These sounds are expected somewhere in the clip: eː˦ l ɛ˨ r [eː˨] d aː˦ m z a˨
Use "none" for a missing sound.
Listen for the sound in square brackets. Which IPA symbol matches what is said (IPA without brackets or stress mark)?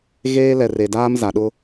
e˨